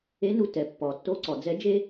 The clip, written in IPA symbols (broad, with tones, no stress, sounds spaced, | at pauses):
e˧˥ n u˧ t ɛ˩ pː ɔ˩ tː o˧ ǀ ɔ˩ d͡z ɛ˧˥ d͡ʒ e˥